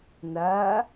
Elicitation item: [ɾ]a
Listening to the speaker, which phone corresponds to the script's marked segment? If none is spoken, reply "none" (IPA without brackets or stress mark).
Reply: n